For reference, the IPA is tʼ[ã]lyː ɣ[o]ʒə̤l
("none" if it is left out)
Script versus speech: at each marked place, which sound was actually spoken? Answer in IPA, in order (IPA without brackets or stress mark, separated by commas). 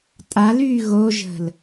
a, o